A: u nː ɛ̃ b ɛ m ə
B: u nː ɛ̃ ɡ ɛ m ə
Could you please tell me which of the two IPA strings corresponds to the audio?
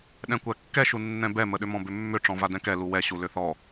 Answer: A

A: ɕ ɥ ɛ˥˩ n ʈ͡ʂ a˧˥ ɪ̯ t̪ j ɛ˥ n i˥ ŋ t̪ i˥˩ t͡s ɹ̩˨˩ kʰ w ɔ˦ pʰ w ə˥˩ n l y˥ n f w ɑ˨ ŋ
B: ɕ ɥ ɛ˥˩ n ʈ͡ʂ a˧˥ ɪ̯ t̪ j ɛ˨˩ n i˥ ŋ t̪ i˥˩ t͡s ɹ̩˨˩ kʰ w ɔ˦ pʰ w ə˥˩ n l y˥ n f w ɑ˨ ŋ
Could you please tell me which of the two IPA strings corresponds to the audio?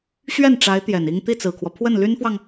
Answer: B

